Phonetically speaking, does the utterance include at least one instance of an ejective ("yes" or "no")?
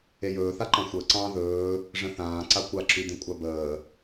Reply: yes